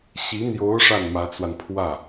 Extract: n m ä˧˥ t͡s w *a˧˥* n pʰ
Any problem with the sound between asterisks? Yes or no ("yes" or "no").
yes